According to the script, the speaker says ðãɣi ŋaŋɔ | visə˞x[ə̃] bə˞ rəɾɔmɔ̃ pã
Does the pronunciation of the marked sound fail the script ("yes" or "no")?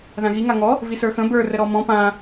no